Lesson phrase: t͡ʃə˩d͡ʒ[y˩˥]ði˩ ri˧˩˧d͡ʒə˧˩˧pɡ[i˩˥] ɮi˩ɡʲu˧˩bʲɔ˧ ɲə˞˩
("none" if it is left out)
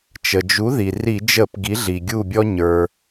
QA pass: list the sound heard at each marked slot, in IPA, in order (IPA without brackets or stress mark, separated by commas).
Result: u˩˥, i˩˥